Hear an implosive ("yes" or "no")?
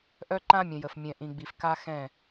no